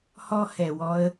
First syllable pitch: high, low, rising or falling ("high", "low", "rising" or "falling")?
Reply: high